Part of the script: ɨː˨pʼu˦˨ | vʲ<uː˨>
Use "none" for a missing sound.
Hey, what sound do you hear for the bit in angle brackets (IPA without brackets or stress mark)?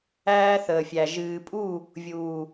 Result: uː˨